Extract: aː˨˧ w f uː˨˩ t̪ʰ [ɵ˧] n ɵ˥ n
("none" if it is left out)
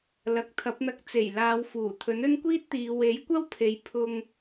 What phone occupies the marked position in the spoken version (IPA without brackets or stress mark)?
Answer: ɵ˨˥